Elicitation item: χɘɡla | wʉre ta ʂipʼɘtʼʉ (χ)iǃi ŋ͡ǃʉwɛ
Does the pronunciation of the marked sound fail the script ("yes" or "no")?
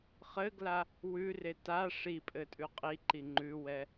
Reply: yes